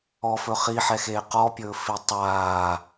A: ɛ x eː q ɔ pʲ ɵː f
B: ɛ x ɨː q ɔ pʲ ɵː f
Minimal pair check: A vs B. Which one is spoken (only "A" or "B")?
A